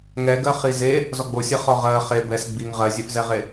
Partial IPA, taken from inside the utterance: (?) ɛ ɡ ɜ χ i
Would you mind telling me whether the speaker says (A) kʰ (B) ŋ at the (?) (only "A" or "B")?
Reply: B